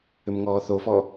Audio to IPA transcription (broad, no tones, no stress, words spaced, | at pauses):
ʏmŋɔːθofɔ